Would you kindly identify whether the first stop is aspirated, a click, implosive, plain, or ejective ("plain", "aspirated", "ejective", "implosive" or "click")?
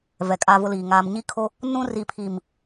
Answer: ejective